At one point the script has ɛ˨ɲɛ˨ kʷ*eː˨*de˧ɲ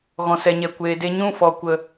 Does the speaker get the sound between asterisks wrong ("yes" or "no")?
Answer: no